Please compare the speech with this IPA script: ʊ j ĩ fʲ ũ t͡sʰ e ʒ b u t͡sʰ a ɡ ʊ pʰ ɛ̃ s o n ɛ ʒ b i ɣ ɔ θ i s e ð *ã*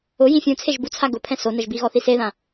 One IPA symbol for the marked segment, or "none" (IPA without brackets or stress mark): ã